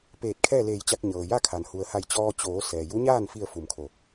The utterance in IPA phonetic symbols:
peː˧˩t̚kʰɛː˥˨leː˧˩jt͡ɕa˧k̚ ɲɤː˩ja˥˨kʰa˩n hu˩ə̯ha˧˩jt͡ɕɔː˧ t͡ɕoː˩˧ sɛː˩ju˧˥ɲaː˥˨n fi˥˨ə̯ fu˧˩mkʰo˧˩

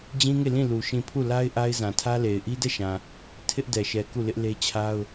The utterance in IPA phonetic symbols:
d͡ʑĩ˦ŋe˦˨ lĩ˦˨lu˨ ʃĩ˦˨ pʰu˦˨la˦ɪ̯ ʔa˦ɪ̯zã˨tʰä˦le˨ɪ̯ ʔi˦dɛ˦˨ʃã˨ | tʰɪ˦ʔdɛ˨ʃɛ˨ ku˦˨lɪ˦ʔle˦t͡ɕʰa˦ʊ̯

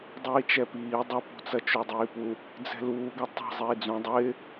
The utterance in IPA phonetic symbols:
dˤiːt͡ʃɛpiː dˤʊpṳt͡sɐ t͡ʃudˤiːpu | d͡zɛ̤luːɡɐ tˤɛ̤ zˤiːd͡zũ dˤɪː

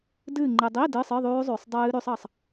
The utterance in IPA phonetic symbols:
dɨː˦˨ŋ͡ǃɨ˨ dˤi˧˥˧ dɨː˧˥˧sˤɨ˧˥˧ðˤʉː˦˥zˤʉː˨sˤ dˤɨː˦˥ɾʉ˦˥sˤ ɑ˦˨sˤ

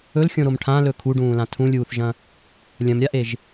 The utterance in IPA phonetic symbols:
ɵlxʲõɾom ʈʰãlɵ kʰuɖũːlã tʰũlʲuːθʒɐ̃ | lʲɐ̃mɾʲaʔeʒ

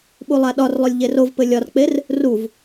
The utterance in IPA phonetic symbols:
ɓulˠaɗɒrlˠɵlʲ ʎerovpɘ lʲɒrk͡per | ruv

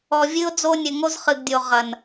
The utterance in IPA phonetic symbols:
ɔ˨vʲɨ˦ʊ̯d͡zo˦nʲɘ˨ ŋo˦zχɨ˨ɡdʲo˨ ʁɐ˨n

